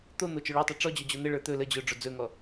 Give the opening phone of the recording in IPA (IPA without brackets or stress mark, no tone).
t̪